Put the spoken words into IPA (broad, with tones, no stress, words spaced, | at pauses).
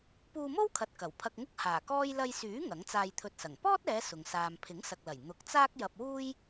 puː˧mo˥wkʰɐ˨t̚ kɐ˨˩w pʰɐ˧k̚ŋʊ˥k̚ haː˨˩kɔː˥j lɐ˧jsyː˨˥ ŋɐ˨˥ŋt͡saː˧jt̪ʰɵ˧t̚sɐ˨˩ŋ pɔː˥t̚ɛː˨˧ sʊ˨ŋ saː˨mpʰɪ˨˥ŋsɐ˨k̚lɐ˨˩j n̪ʊ˨k̚ t͡saː˥k̚ jɐ˧p̚wuː˥j